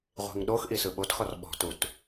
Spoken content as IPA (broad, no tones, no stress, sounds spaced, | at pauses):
ʁʷ i̤ ŋ ɗ o x ʔ i s ɯ ɓ o t x ɔ r ɓ ɔ̤ t u t